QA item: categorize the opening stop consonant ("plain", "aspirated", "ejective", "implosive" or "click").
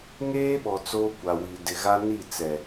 implosive